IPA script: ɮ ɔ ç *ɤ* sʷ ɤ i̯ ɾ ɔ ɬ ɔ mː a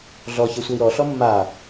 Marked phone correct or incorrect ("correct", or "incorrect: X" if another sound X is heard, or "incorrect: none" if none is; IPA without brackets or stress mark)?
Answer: correct